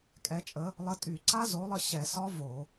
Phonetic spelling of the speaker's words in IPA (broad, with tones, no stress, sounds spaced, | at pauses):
kʼ ɛ˨˦ t͡ʃʼ ə˨˦ | lˠ ə˨˦ tʼ y˧˩˧ ǀ a˦˥ z o˨˦ lˠ ə˥˩ ɕ ɛ˧˩˧ s ɒ˦˥ v o˧˩˧